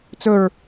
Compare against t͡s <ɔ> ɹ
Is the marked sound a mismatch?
yes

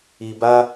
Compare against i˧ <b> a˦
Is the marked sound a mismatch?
no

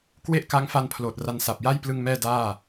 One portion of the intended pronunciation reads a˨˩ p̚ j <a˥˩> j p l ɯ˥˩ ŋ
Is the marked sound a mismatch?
no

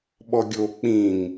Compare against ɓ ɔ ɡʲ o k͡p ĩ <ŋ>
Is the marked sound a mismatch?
no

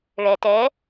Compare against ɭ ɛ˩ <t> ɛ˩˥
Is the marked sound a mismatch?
no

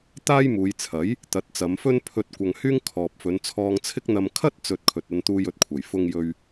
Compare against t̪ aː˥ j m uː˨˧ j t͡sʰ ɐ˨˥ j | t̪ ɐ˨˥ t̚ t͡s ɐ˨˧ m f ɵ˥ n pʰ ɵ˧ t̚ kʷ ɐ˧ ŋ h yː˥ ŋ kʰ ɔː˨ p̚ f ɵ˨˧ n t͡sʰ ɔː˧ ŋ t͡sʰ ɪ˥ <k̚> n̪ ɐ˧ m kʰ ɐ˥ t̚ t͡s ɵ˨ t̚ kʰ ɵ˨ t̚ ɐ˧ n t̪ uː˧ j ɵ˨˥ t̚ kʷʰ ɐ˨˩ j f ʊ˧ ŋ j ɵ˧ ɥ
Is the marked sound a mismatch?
no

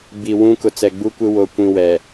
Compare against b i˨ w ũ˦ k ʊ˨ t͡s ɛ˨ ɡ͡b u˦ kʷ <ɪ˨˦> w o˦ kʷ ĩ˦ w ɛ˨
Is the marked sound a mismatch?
yes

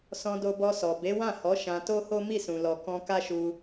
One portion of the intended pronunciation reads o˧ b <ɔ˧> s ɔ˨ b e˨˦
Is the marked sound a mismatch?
no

